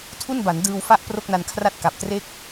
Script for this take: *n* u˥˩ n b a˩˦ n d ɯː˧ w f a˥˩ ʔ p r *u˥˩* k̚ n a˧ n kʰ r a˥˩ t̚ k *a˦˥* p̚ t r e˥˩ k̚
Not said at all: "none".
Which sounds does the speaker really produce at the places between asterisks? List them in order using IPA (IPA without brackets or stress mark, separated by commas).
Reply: tʰ, o˥˩, a˨˩